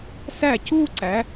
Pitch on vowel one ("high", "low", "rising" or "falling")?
falling